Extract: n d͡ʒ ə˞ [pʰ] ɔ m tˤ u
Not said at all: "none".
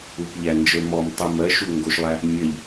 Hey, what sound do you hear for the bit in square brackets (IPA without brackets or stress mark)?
m